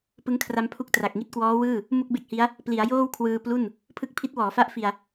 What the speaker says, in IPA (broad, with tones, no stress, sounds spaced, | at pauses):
p ɯ˦˥ ŋ kʰ r a˦˥ m pʰ u˦˥ k̚ t r a˨˩ k̚ ŋ i˥˩ t̚ k w ɔː˦˥ w ɯː˥˩ | m u˥˩ k̚ b e˥˩ k̚ h i˦˥ a̯ | p l i˩˦ a̯ j oː˥˩ w kʰ w ɯː˧ p l u˥˩ n | pʰ ɯ˦˥ k̚ pʰ i˦˥ t̚ w ɔː˩˦ f a˦˥ ʔ f i˧ a̯